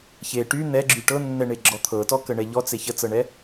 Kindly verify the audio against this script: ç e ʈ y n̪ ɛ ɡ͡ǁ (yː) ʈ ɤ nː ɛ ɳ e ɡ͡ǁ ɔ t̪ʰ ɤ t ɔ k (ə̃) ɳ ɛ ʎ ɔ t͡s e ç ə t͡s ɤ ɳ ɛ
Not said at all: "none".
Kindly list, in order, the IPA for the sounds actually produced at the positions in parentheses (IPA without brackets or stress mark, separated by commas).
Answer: y, ə